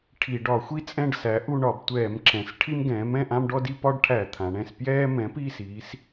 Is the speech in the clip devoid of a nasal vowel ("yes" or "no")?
no